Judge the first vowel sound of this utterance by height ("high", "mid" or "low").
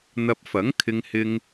low